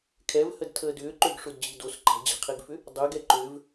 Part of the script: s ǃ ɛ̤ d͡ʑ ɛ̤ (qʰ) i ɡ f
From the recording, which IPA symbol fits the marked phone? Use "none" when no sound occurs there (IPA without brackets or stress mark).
qʰ